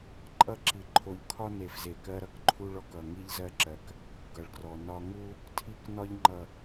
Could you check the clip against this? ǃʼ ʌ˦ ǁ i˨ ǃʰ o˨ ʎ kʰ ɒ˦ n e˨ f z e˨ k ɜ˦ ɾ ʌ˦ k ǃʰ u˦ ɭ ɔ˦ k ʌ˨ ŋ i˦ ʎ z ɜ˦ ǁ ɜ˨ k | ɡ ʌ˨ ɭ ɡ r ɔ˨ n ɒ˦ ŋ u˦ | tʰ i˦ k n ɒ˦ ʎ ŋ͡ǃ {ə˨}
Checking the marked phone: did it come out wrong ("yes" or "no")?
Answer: yes